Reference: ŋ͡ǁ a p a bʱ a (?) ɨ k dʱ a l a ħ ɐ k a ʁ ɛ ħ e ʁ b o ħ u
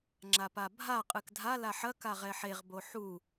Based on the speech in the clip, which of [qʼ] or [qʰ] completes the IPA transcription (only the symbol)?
qʼ